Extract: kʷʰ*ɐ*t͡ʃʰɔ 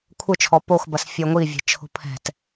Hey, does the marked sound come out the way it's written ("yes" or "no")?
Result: no